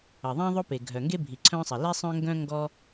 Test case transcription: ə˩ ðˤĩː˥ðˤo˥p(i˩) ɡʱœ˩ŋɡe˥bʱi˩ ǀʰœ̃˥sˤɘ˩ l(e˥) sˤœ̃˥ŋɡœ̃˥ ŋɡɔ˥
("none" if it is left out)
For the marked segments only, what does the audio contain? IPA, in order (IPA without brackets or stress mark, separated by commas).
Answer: e˩, e˥